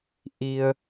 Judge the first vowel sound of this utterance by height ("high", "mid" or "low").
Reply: high